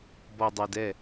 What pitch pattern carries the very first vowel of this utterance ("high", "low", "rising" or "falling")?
low